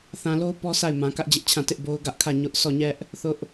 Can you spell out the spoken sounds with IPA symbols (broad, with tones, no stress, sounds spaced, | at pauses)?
θ ã˨ l o˦ ʊ̯ p ɔ˦ s a˦˨ ɪ̯ m ã˨ k ä˦ ʔ d͡ʑ ɪ˦ ʔ t͡ɕʰ ã˦˨ t ɪ˦ ʔ b o˦ ʊ̯ ɡ ä˦ ʔ kʰ ä˦˨ ɲ ʊ˦ ʔ s ɔ˦˨ ɲ ɛ˦ ʔ | θ ʊ˦ ʔ